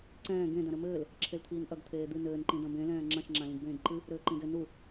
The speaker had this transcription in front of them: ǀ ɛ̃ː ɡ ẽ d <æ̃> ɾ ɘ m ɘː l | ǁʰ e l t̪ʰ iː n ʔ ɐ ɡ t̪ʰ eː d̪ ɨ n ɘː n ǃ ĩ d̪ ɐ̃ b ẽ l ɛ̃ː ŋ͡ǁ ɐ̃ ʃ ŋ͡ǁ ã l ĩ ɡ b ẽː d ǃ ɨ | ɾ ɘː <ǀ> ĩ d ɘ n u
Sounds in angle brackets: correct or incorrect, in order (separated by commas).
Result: incorrect, incorrect